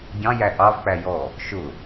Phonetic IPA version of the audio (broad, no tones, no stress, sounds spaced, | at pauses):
ɟ ɑ̃ j æ ʔ ɑ v k͡p æ j ɔ | ʃ ʊ